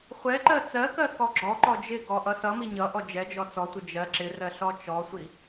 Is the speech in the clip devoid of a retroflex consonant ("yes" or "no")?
yes